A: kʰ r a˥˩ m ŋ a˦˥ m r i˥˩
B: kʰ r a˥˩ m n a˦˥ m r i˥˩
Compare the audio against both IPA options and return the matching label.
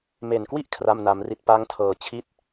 B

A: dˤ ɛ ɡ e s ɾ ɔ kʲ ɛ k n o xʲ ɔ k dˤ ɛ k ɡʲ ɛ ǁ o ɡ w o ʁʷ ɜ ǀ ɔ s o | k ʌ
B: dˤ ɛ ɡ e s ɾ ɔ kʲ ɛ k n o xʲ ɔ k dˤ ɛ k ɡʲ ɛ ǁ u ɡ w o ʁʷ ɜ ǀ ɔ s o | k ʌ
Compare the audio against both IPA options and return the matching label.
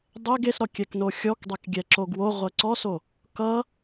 A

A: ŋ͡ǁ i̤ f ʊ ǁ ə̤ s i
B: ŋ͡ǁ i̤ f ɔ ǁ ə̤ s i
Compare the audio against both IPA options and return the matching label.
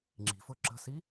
A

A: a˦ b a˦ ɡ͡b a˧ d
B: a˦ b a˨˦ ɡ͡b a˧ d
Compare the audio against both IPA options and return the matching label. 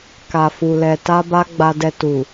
A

